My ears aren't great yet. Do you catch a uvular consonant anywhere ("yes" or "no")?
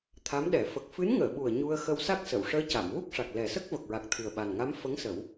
no